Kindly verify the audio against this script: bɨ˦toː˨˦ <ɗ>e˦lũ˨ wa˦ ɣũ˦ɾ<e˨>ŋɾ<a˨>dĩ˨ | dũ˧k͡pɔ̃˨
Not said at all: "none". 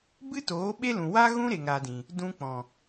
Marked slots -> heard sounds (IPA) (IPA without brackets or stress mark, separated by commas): ɓ, e˨, a˨